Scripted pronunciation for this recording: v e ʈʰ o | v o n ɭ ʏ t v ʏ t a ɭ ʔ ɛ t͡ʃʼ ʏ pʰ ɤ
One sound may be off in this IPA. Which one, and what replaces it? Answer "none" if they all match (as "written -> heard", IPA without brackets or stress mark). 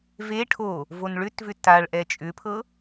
none